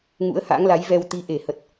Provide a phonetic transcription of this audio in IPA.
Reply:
ŋ ṵ˧˥ ə̯ h a̰˧˥ ŋ l a˨˦ j v ɛ˧ w t̪ i˨˦ ʔ e˧˩ h ə˨˩ t̚

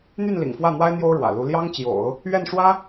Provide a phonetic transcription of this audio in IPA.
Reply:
n̪ y˥˩ n l ḭ˨˩ ŋ f w ä˥˩ n̪ w a˥ ɪ̯ n̪ j o˥ ʊ̯ ɻ w ä̰˨˩ l u˧˥ l j ɑ˥ ŋ t͡ɕ j o̰˨˩˦ ʊ̯ | ɥ ɛ˥˩ n ʂ w ä˥

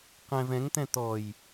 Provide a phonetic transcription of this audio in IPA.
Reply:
q ɛ̃ v ɛ̃ ŋ t̪ ɛ̃ t̪ ɔ j

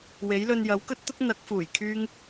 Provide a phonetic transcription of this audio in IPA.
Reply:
w e˨˥ j l ɵ˧ n j ɐ˨˥ w k ɵ˥ t̚ t̪ ʊ˥ k̚ n̪ ɐ˨˥ k̚ f uː˨˩ j kʰ yː˥ ŋ

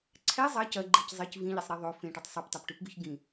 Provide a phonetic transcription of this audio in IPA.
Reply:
ǀʰ ɛ zˤ ɐ c ɐ ɡ͡ǃ i c zˤ ɪ c v ĩ ʎ e sˤ ɾ e ðˤ o f ẽ ʈ ɪ tˤ sˤ ʉ p tˤ e p ʈ ʉ p ɡ ʉ ç ɡ ĩ

